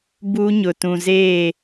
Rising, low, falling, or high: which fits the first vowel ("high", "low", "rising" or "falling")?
high